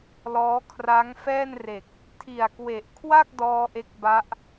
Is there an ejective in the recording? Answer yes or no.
no